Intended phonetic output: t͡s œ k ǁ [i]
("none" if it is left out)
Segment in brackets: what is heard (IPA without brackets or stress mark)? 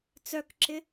ɪ